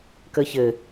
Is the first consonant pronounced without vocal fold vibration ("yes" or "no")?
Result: yes